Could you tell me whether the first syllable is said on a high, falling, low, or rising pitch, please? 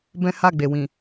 high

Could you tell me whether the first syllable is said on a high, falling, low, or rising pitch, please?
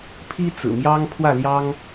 high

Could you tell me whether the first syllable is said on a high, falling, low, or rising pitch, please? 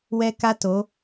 high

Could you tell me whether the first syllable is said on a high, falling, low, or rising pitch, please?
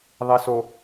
low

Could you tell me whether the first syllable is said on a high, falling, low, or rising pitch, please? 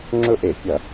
falling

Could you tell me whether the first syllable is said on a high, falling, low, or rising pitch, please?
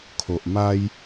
low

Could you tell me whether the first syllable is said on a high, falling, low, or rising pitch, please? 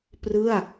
falling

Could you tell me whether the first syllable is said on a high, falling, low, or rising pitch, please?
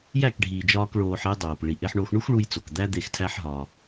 falling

